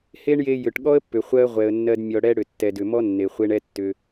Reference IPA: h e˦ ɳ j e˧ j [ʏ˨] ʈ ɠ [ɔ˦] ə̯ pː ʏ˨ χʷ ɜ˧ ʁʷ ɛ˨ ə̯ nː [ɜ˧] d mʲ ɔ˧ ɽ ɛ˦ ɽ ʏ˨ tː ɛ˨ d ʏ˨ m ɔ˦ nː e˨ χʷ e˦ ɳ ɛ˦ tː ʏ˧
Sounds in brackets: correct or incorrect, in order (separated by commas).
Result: correct, correct, correct